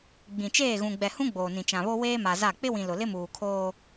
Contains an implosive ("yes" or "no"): no